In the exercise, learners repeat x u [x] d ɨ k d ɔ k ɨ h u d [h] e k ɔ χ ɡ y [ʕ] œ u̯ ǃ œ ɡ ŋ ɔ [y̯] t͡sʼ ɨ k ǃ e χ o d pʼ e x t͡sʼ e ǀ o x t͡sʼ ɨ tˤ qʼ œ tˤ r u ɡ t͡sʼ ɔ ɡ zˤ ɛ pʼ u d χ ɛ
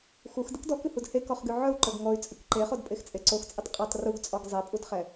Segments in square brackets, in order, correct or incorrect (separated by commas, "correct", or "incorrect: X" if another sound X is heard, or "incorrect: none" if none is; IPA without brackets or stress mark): correct, correct, correct, correct